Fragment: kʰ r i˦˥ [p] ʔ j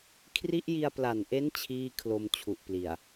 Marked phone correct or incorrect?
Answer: incorrect